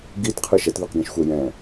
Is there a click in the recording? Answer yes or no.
no